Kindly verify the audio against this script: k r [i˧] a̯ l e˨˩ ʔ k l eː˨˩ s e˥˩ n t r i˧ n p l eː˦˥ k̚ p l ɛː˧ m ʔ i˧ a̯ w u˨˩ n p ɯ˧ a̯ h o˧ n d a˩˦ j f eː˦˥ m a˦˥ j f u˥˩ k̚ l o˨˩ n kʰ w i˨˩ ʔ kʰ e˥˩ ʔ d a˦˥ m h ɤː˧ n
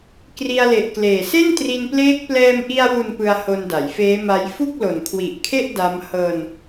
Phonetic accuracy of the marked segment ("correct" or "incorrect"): correct